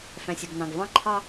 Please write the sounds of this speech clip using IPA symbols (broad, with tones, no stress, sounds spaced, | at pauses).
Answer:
f æ̃˨ sʲ o˨ ɡ n ɑ̃˨ ɡ v ɑ̃˦ ǃʰ ɑ˦